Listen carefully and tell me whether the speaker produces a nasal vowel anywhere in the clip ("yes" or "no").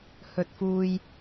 no